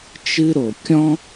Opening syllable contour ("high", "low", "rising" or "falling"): high